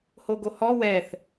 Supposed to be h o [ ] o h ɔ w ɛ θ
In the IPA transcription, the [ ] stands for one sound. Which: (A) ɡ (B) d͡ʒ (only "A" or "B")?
A